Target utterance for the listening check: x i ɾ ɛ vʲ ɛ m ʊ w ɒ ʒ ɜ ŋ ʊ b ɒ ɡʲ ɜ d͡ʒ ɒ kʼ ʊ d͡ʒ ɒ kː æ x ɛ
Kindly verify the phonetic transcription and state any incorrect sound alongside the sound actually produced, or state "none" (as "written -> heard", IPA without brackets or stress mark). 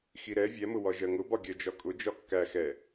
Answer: none